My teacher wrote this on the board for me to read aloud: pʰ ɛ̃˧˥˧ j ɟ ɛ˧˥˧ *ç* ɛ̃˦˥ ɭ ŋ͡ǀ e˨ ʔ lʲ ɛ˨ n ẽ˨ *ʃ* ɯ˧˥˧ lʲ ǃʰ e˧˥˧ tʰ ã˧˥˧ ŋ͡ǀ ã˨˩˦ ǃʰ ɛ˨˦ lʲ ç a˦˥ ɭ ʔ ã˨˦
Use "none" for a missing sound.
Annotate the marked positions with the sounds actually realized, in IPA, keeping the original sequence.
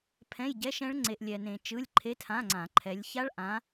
ʃ, t͡ʃ

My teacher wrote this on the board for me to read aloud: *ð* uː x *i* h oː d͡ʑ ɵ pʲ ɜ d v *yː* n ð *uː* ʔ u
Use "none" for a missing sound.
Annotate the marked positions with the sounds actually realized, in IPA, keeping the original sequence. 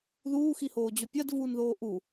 ð, i, uː, oː

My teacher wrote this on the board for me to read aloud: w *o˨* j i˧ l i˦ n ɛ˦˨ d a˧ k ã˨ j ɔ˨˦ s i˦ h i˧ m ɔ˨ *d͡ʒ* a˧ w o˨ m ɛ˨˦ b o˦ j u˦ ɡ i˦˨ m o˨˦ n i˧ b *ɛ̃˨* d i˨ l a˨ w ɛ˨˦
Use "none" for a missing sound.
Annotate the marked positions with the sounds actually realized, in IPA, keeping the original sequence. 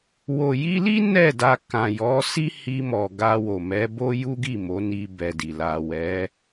o˨, ɡ, ɛ˨

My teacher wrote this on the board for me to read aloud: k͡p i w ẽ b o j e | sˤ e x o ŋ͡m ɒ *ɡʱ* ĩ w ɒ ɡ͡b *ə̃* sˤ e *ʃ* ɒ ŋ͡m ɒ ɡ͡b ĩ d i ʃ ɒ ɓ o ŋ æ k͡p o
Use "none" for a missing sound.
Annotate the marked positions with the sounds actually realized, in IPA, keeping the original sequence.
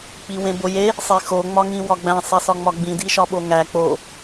ŋ, æ̃, s

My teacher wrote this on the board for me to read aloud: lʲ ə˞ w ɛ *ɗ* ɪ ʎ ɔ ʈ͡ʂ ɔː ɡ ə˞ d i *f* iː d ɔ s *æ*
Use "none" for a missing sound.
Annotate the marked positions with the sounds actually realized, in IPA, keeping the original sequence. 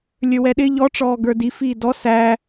ɗ, f, æ

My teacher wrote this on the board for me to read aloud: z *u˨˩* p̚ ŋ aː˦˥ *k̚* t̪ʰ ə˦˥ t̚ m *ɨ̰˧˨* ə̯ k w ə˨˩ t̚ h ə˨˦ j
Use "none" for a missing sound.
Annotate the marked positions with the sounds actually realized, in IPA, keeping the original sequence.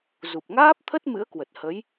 u˨˩, p̚, ɨ̰˧˥

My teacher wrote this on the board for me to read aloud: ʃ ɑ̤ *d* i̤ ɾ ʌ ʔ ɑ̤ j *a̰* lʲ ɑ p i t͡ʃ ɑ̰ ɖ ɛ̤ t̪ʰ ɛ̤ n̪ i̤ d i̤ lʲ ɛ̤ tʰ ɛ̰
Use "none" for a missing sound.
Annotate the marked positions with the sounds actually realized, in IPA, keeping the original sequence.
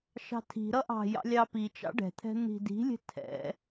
tʰ, ɑ̰

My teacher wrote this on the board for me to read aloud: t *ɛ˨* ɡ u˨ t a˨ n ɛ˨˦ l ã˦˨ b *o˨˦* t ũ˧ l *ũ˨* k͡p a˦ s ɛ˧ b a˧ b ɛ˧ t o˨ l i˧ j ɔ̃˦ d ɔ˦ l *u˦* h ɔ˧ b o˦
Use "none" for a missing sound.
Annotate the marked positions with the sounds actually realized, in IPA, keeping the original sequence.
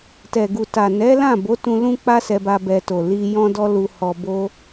ɛ˨, o˨˦, ũ˦, u˧

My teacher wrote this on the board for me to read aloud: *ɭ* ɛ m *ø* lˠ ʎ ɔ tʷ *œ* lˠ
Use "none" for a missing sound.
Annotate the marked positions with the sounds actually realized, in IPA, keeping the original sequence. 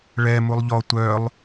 ɭ, u, œ

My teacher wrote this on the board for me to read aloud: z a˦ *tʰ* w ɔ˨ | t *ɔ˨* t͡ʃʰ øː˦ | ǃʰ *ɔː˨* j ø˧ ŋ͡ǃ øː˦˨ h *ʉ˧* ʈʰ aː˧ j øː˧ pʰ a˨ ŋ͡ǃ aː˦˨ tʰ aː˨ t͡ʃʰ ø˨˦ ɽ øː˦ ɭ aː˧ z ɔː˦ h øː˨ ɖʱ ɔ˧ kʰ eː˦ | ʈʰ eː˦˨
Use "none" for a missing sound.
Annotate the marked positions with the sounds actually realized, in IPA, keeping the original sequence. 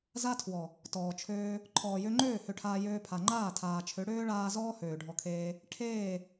tʰ, ɔː˨, ɔː˨, ø˧

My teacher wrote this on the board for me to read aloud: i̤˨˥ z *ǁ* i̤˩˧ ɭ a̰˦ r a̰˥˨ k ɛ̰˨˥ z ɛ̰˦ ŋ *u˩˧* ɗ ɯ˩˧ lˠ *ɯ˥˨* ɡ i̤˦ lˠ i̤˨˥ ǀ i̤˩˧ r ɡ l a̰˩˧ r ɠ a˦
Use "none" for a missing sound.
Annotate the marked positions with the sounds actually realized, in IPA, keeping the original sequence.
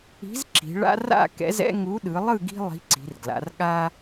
ǁ, u˨˥, ɯ˥˨

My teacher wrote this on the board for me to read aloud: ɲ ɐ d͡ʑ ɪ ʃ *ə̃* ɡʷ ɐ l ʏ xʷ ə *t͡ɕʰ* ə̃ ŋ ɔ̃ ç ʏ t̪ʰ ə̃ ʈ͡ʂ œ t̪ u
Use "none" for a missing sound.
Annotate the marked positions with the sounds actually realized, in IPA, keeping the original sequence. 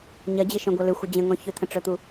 œ̃, d͡ʑ

